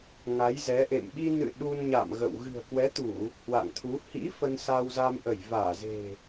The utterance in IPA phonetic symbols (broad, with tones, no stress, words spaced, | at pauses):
ŋa˨˦jzɛ˨˦ʔḛ˧˨m ɓi˧nɨ̰˧˨ ɗu˧nɲa̰˧˨m ɣə̰˧˨w ɣɨ̤˨˩ə̯kwɛ˨˦t̪u˧˩˨ | hwa̰˧˨ŋt̪ʰu˨˦ hḭ˧˥ fə˧nsa˧wzaː˧mʔə˧˩j vaː˧˩ze̤˨˩